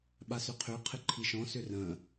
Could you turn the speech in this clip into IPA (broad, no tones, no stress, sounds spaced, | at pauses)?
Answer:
ɓ a s ʏ qʰ ø qʰ ɪ ǃʰ i ʃ ɔ̃ s ʏ r ə̃